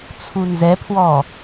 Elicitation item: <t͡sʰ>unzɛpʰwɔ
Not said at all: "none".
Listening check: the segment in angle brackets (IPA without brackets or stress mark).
t͡sʰ